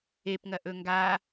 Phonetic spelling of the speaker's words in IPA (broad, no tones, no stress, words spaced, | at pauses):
epŋɐʔɵ ŋɡa